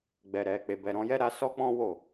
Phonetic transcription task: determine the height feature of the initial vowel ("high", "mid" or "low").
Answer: mid